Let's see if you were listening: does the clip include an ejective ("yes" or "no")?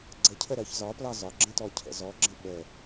no